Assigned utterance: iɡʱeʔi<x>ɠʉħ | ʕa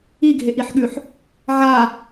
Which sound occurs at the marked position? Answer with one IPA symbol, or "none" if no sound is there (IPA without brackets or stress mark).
ħ